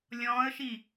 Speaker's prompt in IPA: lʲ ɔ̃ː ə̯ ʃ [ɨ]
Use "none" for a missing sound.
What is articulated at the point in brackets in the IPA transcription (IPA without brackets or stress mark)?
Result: i